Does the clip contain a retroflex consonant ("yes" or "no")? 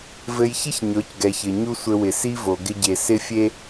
no